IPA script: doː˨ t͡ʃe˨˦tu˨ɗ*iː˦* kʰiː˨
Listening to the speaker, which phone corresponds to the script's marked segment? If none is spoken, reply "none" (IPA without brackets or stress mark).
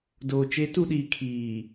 iː˨